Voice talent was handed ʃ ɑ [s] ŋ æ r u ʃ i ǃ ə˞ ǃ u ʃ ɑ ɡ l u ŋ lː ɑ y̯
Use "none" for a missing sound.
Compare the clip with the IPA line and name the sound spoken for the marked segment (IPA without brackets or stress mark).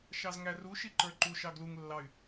z